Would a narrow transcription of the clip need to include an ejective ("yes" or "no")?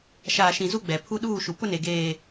no